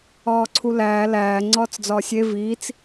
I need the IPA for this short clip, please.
ɒː ǀʰ u l æː l æː ŋ͡ǀ ɒː t͡s d͡z ɒː sʲ e v iː t͡s

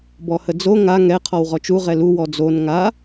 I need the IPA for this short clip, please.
b ɔ h ə d͡z o ŋ a ŋ ɛ qʰ ɔ w ʁ ɔ t͡ʃ u ʁ ɛ l u w ɔ d͡z o n ŋ a

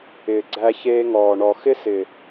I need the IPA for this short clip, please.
ɪː˨ ɡ͡ǀ æ˧ ç eː˧ ŋ ɔː˨ ɳ ɔ˨ x ɪ˦ s ɪ˨

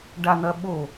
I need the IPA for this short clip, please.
ɖ a n̪ ɐ ɓ o

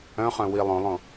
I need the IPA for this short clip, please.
œ̃ χ œ̃ w i lˠ õ lˠ õ

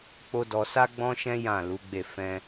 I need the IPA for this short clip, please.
k͡p o˦ d ɔ˧ s a˦ ɡ͡b ɔ̃˦ ʃ ɛ̃˦ j ã˦˨ l u˨˦ ɡ͡b e˦˨ f ɛ̃˧

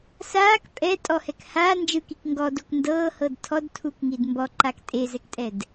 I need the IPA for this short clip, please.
s aː k pʼ ɛ tʼ ɔ h ɛ k h aː n d͡ʒ ɯ k i k ŋ ɡ ɔ d o k n d ɤː h ɤ d tʰ ɔ d tʰ u k ŋ i d m b ɔ ǃ a k tʼ e z ɛ k tʼ ɛ d

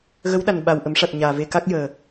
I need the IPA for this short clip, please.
ɣ ə˧˥ w ɗ a˨˩ n ɓ a˨˩ w ʔ ə˨˩˦ m ʂ a˨˩ t̚ ɲ aː˨˩ v e˧ k a˦˥ k̚ j əː˨˩

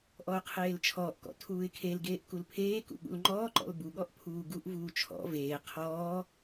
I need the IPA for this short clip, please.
ʔ ɔ ʊ̯ qʰ eː l t͡ʃʰ ɔː ʔ k ɔ̰ tʰ uː ɪ̯ kʰ e l ɡ eː ʔ k u l pʰ eː k ṵ ɠ ṵ l ŋ͡ǃ ɔː ǃ ɔ̰ l b u ɠ ɔ ʔ pʰ uː ɡ u ʔ v uː t͡ʃʰ ɔ̰ v eː qʰ ɔː

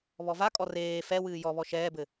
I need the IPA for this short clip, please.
β ɔ v a kʼ ɔ r eː f ɛ w ɨː j ɔ β ɔ ʃ ɛː b ɘ

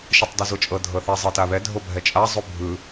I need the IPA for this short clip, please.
ʃ ɯ tˤ d ɯ z o t͡ʃʼ ɤ dʱ ɤ θ ɛ zˤ ɤ t a β ɛ dʱ o bʱ ɛ t͡ʃʼ a zˤ u bʱ ɯ

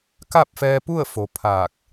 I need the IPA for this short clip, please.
k a˥˨ p̚ f ɛː˧ p u˥˨ ə̯ f o˩˧ pʰ aː˧˩ k̚

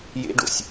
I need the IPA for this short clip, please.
j ḛ ɖ o̰ sʲ

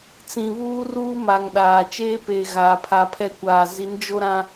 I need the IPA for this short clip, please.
t͡s ĩ˨ β uː˦ r uː˦ m a˨ ŋ ɗ aː˨ t͡ʃ eː˦ p eː˨ ɣ aː˨ pʰ a˨ pʰ ɛ˦ kʷ aː˨ z i˨˦ n d͡ʒ o˦ ɾ ã˦

